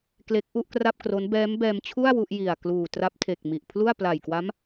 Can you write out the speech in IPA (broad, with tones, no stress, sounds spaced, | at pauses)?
k l e˦˥ k̚ ʔ u˥˩ ʔ k r a˥˩ p̚ k r o˦˥ n b ɛː˦˥ m b ɛː˧ m t͡ɕʰ u˥˩ a̯ w u˥˩ ʔ j i˨˩ a̯ k l uː˨˩ t r a˦˥ p̚ tʰ e˨˩ k̚ m i˨˩ ʔ pʰ l u˥˩ a̯ p l a˨˩ j k w a˦˥ m